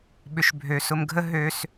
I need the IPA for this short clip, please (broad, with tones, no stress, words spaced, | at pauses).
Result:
ɓʏ˨ʃ bʱø˨sʊ˧mɡʱə˦ ɦø˧s